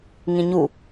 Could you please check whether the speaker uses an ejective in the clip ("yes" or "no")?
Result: no